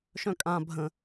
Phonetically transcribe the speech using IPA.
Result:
ʃœ̃kʼã bʱə̃

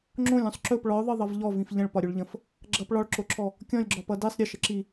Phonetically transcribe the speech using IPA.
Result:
ŋ͡ǁõlʲõsˤ ǁɵp ɭɒʊ̯ðˤɯðˤʌv ʎɔvĩf ʎə̃ɭpɒɾʲɵɭʎə̃f | ɡ͡ǁʌp ɭɒɭǁoǁʰɔ | kʲɔ̃lʲɡ͡ǁɒpʌ disˤ ɾʲəʃəǁi

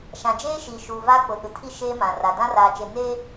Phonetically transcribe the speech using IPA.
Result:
ʃã˨d͡ʒeː˦ʃiː˨ʃuː˨ vaː˦k͡pʊ˨ ɗʊ˨tʰi˦˨ ʃeː˦mã˨ra˨ dã˦raː˨t͡ʃeː˨ neː˦

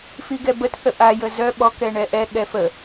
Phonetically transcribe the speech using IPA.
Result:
fiɡɛbət θəʔa jəzœ ɓɔk ɛɳɛʔɛ ɠɛfə

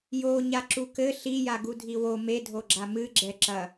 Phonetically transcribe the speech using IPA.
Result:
joɲaǁu kɘ ɬijaɡudʱi wo medʱoɡ͡ǁa mɨɡ͡ǁɛǁɐ

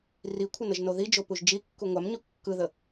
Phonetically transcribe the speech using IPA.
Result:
rikʷʰənəʒno ðid͡ʒopuʒ d͡ʒikːu ŋʷamɲu kːɯðə

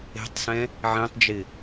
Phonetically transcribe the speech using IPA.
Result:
e̤tˤsɛ̃ | ʕẽtˤd͡ʒɪ

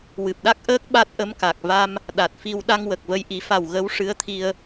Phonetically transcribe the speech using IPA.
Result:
wɨ˨˩p̚ɗa˦˥k̚ʔəː˦˥k̚ ɓa˦˥t̚ʔə˧˥mka˨˩k̚ va˧m | ɗa˨˩t̚ fi˧w ɗa˧ŋwə˨˩k̚və˧j ʔi˨˩˦fa˨˩w ɣə˧˥wʂɨ˧˥ə̯t̪ʰi˧ə̯

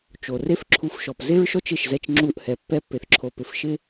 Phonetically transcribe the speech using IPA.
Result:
t͡ʃo˨re˦fǁʰu˧f ʃɔ˨pze˦ɹʃɔ˦t͡ʃ ɪ˦˨ʃzɛ˧t͡ʃŋ͡ǁu˧ʔhɛ˨ pːɛ˦pːe˧θǁʰo˧pɪ˧f ʃɪ˦

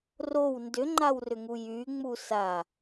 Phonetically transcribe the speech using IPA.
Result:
row ndʏŋ͡ǃawrʏŋu jyŋ͡mu sa

